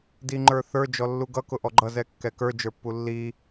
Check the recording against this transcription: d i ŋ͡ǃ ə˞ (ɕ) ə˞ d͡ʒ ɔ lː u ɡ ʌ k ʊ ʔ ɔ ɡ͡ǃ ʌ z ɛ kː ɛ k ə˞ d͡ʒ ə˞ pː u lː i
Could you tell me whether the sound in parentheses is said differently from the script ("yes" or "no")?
yes